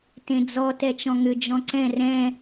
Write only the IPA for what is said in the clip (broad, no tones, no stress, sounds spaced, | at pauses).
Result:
t ẽ d͡z ɔ t ɛ t͡ʃ ɔ̃ ŋ ʏ d͡ʒ ɔ̃ ǀ ɛ̃ r ɛ̃